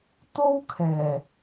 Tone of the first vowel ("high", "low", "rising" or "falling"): high